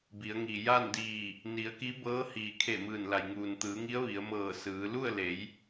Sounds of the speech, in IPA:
b i˩˧ ə̯ ŋ i˩ j a˥˨ n d iː˧˩ | n i˩˧ ə̯ k i˧˥ b ɤː˧˥ h iː˩ kʰ e˧˩ m ɯː˧˩ n l a˩ j ŋ uː˩ n t̪ ɯː˩˧ ŋ i˧˥ ə̯ ʋ i˩˧ ə̯ m ɤː˧˩ s ɯː˩˧ l u˥˨ ə̯ l e˩˧ j

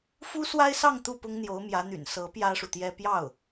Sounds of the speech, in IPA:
f u˥ s w a˥ ɪ̯ s ɑ˥˧ ŋ t̪ u˥˩ p ʊ˥ ŋ n̪ j o˧˥ ʊ̯ m j ä˧˥ n̪ y̰˨˩ n s ɤ˧˥ p j ä˥ ʂ u˨ t̪ j ɛ˥ p j ɑ˥˩ ʊ̯

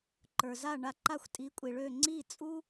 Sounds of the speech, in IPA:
ǃ ə˞˩ z a˥˩ ɳ a˧ ǃ a˥˩ xʷ tʼ i˩˥ kʷʼ i˩ ɭ ø˥˩ ŋ͡ǀ i˥˩ t͡sʼ u˥

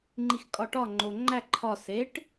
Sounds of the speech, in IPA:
ŋ͡ǃ i x kʼ ɒ ʈ ɒ ŋ͡ǃ o ŋ͡ǃ æ ǃʰ ɒ s e ʈ

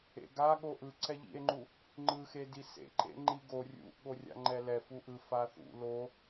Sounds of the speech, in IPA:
ḛ ɡ a ɠ o ʔ ɯ ǀ ɛ ʎ ḭ e̯ ŋ͡ǃ u | ŋ͡ǃ ɯ x e d i s ḛ ǃ ḛ ŋ͡ǃ i ɡ o rʲ ṵ ʔ ɠ o rʲ a̰ ŋ͡ǃ ɛ l ɛ f u ʔ ɯ f a θ ṵ l o

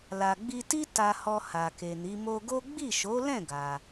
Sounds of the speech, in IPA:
l a˨ ɡ͡b i˧ t i˦ t a˧ h ɔ˧ h a˨ k e˨ n i˨˦ m o˧ ɡ o˦ ɡ͡b i˦˨ ʃ o˨˦ l ɛ̃˦˨ ɡ a˧

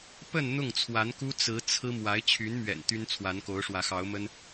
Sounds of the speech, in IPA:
p ə˥˧ n n̪ ʊ˥˩ ŋ t͡sʰ w a˧˥ n k u˥ t͡s ɹ̩˧˥ t͡sʰ ɹ̩˥ m w a˧˥ ɪ̯ t͡ɕʰ y˧˥ n m ɥ ɛ̰˨˩ n t̪ y˥ n t͡sʰ w a˧˥ n k o˧˥ ʊ̯ ʂ w ä˧˥ x ɑ˧˥ ʊ̯ m ə˥ n

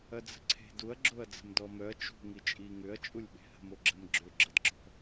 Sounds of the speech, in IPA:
ɐ d͡z ə̤ ǀʰ e̤ d u ɐ̯ ɡ͡ǁ o ɐ̯ d͡z ə̤ m d ɔ m œ ɐ̯ t͡ʃ ṳ ŋ i t͡ʃʼ i ŋ ʏ ɐ̯ t͡ʃʼ u lʲ ɓ e̤ h ə̤ m o ɡ͡ǁ ə m ɡ͡ǁ ø ɡ͡ǁ ə d ǁ ɔ̤

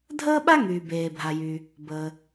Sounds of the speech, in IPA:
dʱ əː˥ ɓ a˥ ŋ yː˩ b eː˩ bʱ a˩ j yː˩ | b əː˩

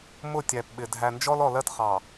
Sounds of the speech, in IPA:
m ʊ˦˨ tʲ æ˨ p ɓ ɪ˨ dʱ æ˨ n d͡ʒ ɔ˦ l ɔ˨ l ɜ˦ t χ ɑ˨

